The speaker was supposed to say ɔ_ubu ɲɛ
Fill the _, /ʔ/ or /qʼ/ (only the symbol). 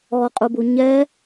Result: qʼ